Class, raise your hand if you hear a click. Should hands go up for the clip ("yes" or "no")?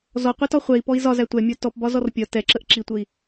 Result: yes